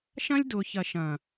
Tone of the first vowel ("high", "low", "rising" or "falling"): high